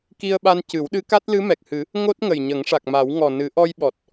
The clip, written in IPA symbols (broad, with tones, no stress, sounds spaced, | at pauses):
k i˧ ə̯ ɓ a˧ n c ɨ˨˩˦ w ɗ ɨ˧˥ k a˦˥ t̚ l ɨ˧˥ m ɛ˨˩ k̚ h ɨ˨˩˦ | ŋ o˦˥ t̚ ŋ ə˨˩ j ɲ ə˨˩˦ ŋ ʂ a˨˩ k̚ m a˨˩˦ w ŋ ɔ˨˩ n ɨ˨˩˦ ʔ ɔ˧ j ɓ ɔ˨˩ t̚